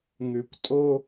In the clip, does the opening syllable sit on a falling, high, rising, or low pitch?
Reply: low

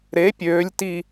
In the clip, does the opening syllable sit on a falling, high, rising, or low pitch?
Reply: rising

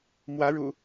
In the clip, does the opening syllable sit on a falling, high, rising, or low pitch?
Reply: rising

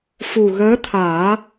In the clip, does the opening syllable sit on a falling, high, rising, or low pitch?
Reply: low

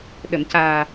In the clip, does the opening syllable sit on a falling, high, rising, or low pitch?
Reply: low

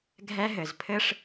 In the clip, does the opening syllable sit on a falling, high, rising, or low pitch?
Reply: high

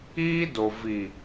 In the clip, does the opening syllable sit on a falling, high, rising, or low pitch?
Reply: high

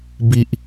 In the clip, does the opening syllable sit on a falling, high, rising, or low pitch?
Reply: high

